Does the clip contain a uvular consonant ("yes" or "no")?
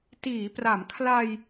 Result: no